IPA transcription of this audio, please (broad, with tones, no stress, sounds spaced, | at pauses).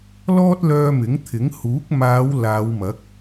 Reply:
l ɔː˥ t̚ l œː˧ m ɪ˨˥ ŋ t̪ʰ ɪ˨˥ ŋ h uː˨˥ k̚ m aː˨˧ w l aː˨˧ w m ɐ˨˥ k̚